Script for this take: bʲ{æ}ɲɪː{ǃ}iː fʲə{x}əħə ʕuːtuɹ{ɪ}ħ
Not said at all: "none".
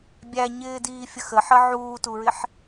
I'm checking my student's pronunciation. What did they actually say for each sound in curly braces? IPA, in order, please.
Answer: æ, d, x, ɪ

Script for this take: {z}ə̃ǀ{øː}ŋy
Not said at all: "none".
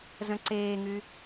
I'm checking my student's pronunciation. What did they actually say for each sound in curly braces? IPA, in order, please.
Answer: z, eː

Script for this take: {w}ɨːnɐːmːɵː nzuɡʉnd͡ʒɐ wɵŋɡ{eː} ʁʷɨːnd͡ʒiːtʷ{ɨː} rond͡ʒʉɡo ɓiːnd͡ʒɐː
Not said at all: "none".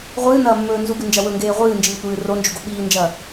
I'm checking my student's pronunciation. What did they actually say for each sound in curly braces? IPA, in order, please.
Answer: ʁʷ, eː, ɨː

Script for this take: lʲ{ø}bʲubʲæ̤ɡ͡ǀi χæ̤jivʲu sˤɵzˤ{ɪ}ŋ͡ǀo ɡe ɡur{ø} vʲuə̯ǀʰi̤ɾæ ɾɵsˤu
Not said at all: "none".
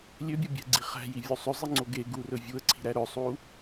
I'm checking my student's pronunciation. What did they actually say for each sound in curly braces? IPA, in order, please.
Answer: ø, i, ɵ

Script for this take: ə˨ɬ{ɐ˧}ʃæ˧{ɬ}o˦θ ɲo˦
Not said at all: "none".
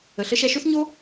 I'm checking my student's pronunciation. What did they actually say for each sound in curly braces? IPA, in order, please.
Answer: ə˧, ʃ

